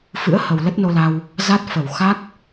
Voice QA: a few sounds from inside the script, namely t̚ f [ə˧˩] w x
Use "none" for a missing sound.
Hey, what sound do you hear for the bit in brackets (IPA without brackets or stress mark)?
ə˧˩